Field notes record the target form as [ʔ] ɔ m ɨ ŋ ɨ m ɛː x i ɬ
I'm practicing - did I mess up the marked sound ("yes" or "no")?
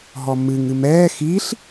yes